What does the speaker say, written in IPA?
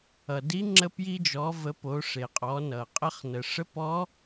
ʌ˩ d i˧˥ ŋ͡ǁ ə˧ p j i˧ d͡ʒ ɔ˩˧ v ə˩˧ p o˩˧ ʂ e˩ qʼ ɔ˩˧ n ʌ˩ qʼ ə˧ χ n ə˩ ʂ ə˧˥ p ɔ˧˥

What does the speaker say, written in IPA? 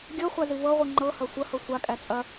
ɡʲ ɤ χʷ a z i v ɤ ʁʷ ɯ ŋ͡ǃ ɤ h ɐ sʷ ɐ h ɤ sʷ a kʼ æ t͡sʼ ɐ

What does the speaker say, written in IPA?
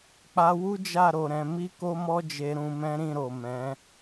k͡p a˧ w u˦ d͡ʒ a˦˨ ɾ o˨ ɾ ɛ̃˨˦ m i˦ k o˦ m ɔ˦ d͡ʒ e˧ ɾ ũ˧ m ɛ̃˦ ɾ ĩ˦˨ ɾ o˨ m ɛ̃˨˦

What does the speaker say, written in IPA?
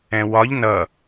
ɛ̃ w ɒ ʎ n ʌ

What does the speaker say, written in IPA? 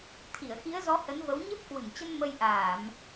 t̪ʰ i˧˩ ə̯ x i˨˦ ə̯ z ɔ˨˦ h ə˨˦ n v ə˨˦ w ɲ ə˦˥ p̚ k w ɨ˧˩ ŋ t͡ɕ ə˧ n m ə˧ j ʔ aː˧˩˨ m

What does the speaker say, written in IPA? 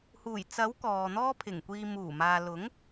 h uː˨˩ j t͡s ɐ˨˥ w k ɔː˨ n̪ ɔː˥ pʰ ɪ˨˩ ŋ kʷ iː˧ m uː˨˩ m aː˨ l ʊ˨˥ ŋ

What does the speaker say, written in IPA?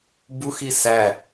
b u x i s æ

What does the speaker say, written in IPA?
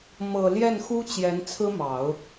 m ɤ˨˩ l j ɛ˥˩ n x u˥ t͡ɕ j ɛ˧˥ n t͡sʰ ɹ̩˥ m ɑ˨˩˦ ʊ̯

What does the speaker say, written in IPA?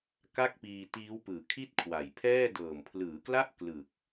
k a˥˩ k̚ p iː˧ t iː˦˥ w p ɯː˨˩ kʰ i˥˩ t̚ kʰ w a˨˩ j pʰ ɛː˥˩ d ɤː˨˩ m pʰ l ɯː˩˦ k l a˥˩ ʔ k l ɯ˨˩ k̚

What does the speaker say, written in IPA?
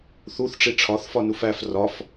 θ u θ ʈ͡ʂ i ʈ͡ʂʰ ɒ θ f ɒ n u f æ f r ɒ f

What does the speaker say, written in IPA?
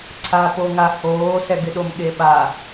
ǀʰ a p o ŋ a h oː s ɛ ɡ ɪ ɗ o m ɠ e ɓ a

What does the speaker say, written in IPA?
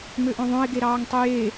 m ø ʔ õ ðˤ õ ɪ̯ ɡ e ɾ ɑː ŋ tˤ ɯ j e

